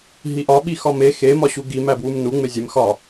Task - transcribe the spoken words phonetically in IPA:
ɦ i ʔ ɒ ɓ i x ɒ m e x e m ɒ ɕ u ɡ i m æ b w u m n u ŋ͡m e zʲ e m x ɒ

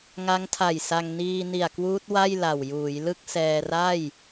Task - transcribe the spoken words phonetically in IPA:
ŋ a˦˥ ŋ tʰ a˨˩ j s a˧ ŋ n iː˧ n i˨˩ a̯ k w uː˦˥ t̚ w a˥˩ j l a˨˩ w j uː˩˦ j l ɯ˥˩ k̚ s ɛː˧ r a˥˩ j

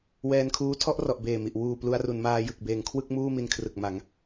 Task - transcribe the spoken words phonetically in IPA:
w ɛː˧ n kʰ uː˦˥ tʰ ɔ˥˩ ʔ r ɔ˨˩ ʔ b eː˨˩ m i˨˩ ʔ w uː˨˩ p l u˧ a̯ r u˩˦ n m aː˧ j ɯ˨˩ k̚ b eː˨˩ ŋ kʰ w ɯ˥˩ k̚ m uː˥˩ m i˧ n kʰ r ɯ˨˩ k̚ m a˩˦ ŋ

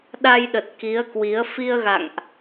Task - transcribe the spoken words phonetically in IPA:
ɗ a˧ j ɗ ə˨˩ t̚ k i˨˦ ə̯ k w i˨˦ ə̯ f i˧ ə̯ ɣ a̰˧˨ ŋ ʔ

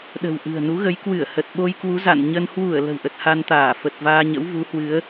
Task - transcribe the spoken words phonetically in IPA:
ɗ ə̤˨˩ w ʔ ɨ̤˨˩ ə̯ n u˨˦ ɣ ə˨˦ j k w ɨ˧˩ ə̯ h ə˨˩ t̚ ɓ o˧ j k w u˨˦ z a̰˧˨ n ɲ ə˧ n h w u˧˩ ə̯ l ə̤˨˩ w ʔ ə˨˩ t̚ h a˧ n t̪ aː˧˩ f ə˨˩ t̚ v aː˧ ɲ ə̰˧˥ w v u˨˦ h w ɨ˨˦ ə̯

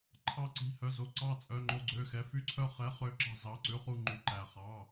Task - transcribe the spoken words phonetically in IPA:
ǃʰ ɑ˥˧ ǀ i̤˧˥˧ h œ˧˥˧ z o˧˥˧ ǀ ɑ˥˧ t͡sʼ œ˧˥˧ ŋ͡ǃ o˥˧ ɡ͡ǀ ø˧˥˧ x ɛ˧˥˧ f y˥˧ ǀʰ œ˥˧ χ ɛ˧˥˧ χ ø˥˧ ǁ ɑ̤˥˧ z ɑ˧˥˧ ǀ ʉ˧˥˧ χ u˥˧ ŋ͡ǃ y˥˧ ǃ æ˥˧ χ ɑ˧˥˧

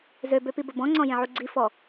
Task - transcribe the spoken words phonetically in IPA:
z ø b ø p i b ə b ɔ̃ ŋ͡ǀ ɔ̃ j ẽ ʕ u ɡ͡ǀ i f ɔ

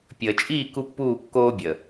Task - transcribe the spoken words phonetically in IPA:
pʲ əː˨ t͡ʃʼ iː˦˨ k u˦ pː uː˦˨ kː oː˦ bʲ əː˨

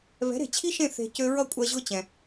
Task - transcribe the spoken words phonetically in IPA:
β ɛ̤˨˦ ɾ e̤˨ t͡ɕʰ i˦ ʃ ẽ˦˨ θ e̤˧ c ø˧ ɹ ʌ˦˨ kʷʼ ɜ˧ ʑ ʊ˦ t͡ɕ ɛ̃˧

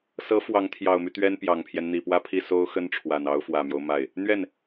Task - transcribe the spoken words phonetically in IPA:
s ɤ˧˥ f w ɑ˧˥ ŋ t̪ʰ j ɑ˨˩ ʊ̯ m y˦ t̪ ɥ ɛ˥ n p j ɑ˨˩ ŋ pʰ j ɛ˦ n n̪ i˨˩ p w ä˥˧ pʰ i˥˩ s o˥ ʊ̯ x ə˥ n ʈ͡ʂʰ w a˨˩ n ɑ˧˥ ʊ̯ f w ä˨˩ m j o˦ ʊ̯ m a˥˩ ɪ̯ | n̪ ɥ ɛ˥˩ n

